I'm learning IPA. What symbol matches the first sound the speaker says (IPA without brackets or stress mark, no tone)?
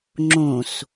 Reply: ŋ͡ǁ